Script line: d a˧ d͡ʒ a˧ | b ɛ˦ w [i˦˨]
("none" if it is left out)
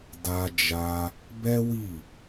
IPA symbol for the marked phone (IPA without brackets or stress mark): i˦˨